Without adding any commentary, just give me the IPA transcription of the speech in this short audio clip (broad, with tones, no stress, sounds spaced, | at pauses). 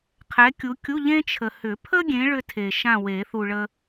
qʰ ɛ˨˦ kʲ u˨˦ kʲ u˧˥˧ ʎ ẽ˥ t͡ʃʰ ə˨ h ʏ˨˩˦ pʰ ə˥ ɡʲ ẽ˨˦ ɭ ʏ˥ tʰ e˨ ʃ ã˥˨ w e˨˩˦ θ u˨ ɭ ə˥